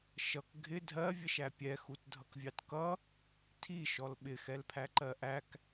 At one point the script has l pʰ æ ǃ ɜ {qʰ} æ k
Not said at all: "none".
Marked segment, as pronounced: ʔ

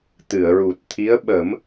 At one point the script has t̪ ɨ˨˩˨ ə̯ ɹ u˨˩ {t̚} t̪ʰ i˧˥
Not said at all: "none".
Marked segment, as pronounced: t̚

